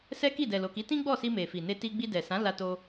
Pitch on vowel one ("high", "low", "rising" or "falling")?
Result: high